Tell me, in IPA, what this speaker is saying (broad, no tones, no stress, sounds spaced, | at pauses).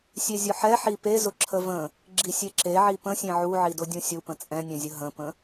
sʲ e zʲ ʊ ħ ɛ ħ i p e z ʊ ǁʰ ə v ə̃ | ɡ͡ǁ i sʲ e ǁ e ʕ i p ə̃ sʲ ẽ ʕ u ʕ i d ʊ dʲ ũ sʲ u p ə̃ t͡sʼ ɛ̃ nʲ ɛ̃ zʲ ə ɦ ə̃ p ə̃